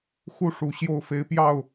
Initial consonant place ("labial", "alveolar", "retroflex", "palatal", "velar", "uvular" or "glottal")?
velar